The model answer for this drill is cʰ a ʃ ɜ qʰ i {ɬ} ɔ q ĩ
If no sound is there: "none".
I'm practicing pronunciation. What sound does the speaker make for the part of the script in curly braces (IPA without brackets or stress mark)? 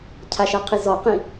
z